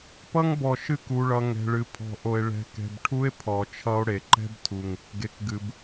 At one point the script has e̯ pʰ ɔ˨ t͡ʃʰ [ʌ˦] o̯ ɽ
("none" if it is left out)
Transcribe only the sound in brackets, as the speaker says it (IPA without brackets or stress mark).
ʌ˦